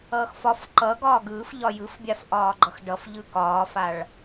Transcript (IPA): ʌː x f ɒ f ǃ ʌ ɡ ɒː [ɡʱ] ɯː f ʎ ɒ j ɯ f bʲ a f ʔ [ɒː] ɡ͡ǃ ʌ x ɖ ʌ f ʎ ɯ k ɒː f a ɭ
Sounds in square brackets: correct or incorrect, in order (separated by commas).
incorrect, correct